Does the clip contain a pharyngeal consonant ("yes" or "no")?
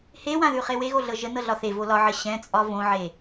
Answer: yes